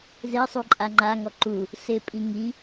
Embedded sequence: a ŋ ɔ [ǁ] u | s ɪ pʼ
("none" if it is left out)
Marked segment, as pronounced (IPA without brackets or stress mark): ǃ